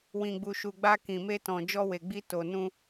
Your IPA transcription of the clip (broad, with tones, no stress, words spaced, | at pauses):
wĩ˨ɡ͡bu˨ʃu˨ɡ͡ba˧ kĩ˨me˧tɔ̃˨ d͡ʒɔ˧we˨ɡ͡bi˧ to˨nũ˧